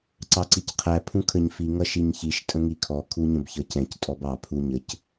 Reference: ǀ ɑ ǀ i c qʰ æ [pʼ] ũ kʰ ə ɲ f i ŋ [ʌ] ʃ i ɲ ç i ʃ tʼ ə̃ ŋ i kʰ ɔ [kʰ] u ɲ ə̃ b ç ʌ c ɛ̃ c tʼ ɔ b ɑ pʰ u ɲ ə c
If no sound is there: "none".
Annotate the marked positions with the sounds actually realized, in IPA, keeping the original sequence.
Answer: pʰ, ʌ, kʰ

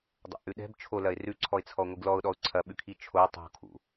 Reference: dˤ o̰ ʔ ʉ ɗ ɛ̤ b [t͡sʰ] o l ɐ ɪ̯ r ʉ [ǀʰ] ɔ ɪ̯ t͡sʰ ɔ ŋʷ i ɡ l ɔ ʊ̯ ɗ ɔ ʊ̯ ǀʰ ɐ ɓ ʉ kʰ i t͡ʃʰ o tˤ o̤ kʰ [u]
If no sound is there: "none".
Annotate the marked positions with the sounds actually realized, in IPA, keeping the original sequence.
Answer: t͡ʃʰ, ǀʰ, ṵ

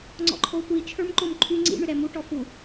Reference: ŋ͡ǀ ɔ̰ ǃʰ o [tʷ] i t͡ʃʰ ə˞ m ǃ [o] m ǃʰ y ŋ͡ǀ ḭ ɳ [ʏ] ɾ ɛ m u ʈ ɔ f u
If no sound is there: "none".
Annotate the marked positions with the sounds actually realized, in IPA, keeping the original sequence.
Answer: tʷ, o, ʏ

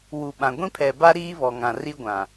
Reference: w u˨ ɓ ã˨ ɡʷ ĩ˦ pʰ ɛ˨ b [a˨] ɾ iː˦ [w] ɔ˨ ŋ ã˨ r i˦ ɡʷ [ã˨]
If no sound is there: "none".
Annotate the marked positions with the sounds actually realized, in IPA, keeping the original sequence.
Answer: a˦, β, ã˨

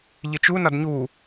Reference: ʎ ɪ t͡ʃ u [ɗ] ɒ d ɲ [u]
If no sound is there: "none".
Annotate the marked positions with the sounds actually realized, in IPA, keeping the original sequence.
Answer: n, u

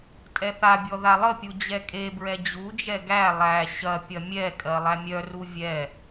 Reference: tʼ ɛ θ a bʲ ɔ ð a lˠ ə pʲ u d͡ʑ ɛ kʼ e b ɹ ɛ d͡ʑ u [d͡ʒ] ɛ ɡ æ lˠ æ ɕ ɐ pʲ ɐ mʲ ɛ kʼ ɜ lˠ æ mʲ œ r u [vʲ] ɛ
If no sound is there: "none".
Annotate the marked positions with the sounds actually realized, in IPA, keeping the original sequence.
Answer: d͡ʒ, vʲ

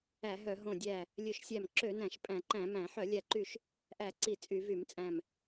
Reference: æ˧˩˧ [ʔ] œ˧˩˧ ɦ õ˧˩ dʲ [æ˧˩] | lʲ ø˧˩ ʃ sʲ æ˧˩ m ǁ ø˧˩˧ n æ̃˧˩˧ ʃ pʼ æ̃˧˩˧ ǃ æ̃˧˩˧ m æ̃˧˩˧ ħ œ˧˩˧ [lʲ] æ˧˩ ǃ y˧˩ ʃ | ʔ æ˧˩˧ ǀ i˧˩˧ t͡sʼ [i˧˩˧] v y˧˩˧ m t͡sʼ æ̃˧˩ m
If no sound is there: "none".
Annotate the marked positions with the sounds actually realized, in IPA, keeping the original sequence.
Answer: ɦ, æ˧˩, lʲ, y˧˩˧

